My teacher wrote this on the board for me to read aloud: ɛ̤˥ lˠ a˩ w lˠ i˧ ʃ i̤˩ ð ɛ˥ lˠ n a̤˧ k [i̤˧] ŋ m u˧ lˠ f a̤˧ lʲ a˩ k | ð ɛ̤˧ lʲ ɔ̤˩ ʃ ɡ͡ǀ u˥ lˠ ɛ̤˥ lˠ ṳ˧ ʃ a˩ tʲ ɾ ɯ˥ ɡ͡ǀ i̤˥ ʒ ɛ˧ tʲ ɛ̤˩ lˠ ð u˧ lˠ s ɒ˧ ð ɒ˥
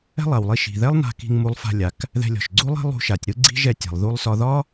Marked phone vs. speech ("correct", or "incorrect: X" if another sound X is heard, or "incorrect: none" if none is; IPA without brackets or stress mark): correct